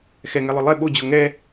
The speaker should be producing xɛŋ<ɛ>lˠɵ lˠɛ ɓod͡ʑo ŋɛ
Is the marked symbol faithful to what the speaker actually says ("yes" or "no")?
yes